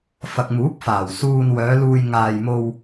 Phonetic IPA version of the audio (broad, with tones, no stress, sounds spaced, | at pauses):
f ɐ˨ k̚ m uː˨˥ p̚ f aː˨˩ w s uː˧ n w œː˨˧ l uː˧ j ŋ aː˨ j m o˧ w